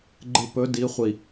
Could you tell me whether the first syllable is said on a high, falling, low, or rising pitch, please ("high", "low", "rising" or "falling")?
low